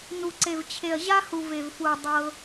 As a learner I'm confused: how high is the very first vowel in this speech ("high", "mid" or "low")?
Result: high